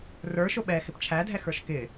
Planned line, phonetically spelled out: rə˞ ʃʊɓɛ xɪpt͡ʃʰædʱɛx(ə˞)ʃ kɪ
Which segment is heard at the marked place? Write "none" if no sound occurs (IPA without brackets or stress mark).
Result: ə˞